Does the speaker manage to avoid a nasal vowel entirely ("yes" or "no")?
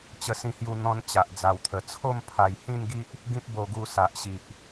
no